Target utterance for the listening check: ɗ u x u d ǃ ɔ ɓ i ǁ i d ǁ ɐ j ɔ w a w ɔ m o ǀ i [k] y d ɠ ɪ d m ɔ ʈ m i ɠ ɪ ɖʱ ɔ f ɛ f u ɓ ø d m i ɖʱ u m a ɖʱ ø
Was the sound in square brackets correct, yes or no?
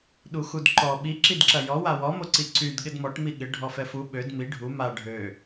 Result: no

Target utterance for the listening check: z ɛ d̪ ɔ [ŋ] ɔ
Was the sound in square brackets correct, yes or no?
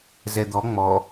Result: no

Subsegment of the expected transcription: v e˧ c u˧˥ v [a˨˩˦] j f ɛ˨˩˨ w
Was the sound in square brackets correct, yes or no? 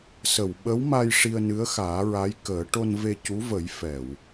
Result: no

